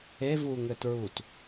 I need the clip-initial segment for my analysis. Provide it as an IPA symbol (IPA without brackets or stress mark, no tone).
e